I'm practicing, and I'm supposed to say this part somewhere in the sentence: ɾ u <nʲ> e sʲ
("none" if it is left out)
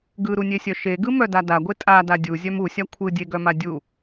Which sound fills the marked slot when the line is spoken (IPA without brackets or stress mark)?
nʲ